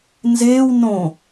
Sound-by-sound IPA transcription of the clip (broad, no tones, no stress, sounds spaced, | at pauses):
n z eː w n õ